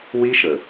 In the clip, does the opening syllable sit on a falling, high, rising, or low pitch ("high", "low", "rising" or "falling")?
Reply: high